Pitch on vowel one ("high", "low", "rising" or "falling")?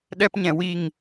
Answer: high